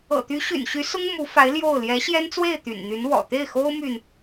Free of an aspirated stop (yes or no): yes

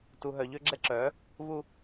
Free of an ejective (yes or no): yes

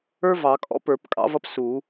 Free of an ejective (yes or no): no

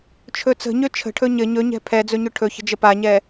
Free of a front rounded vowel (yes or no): no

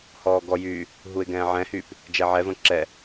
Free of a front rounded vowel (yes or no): no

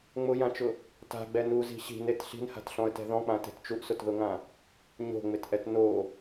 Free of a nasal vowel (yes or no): no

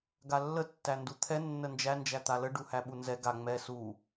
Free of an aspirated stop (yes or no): no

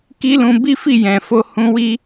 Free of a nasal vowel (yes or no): no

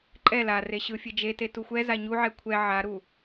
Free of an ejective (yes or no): no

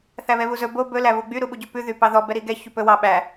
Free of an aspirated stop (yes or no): yes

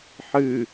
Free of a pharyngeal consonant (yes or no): no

